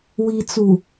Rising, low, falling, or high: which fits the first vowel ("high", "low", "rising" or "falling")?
low